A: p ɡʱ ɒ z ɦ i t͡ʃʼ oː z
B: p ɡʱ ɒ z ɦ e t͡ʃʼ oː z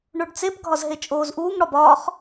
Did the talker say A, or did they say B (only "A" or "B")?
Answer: B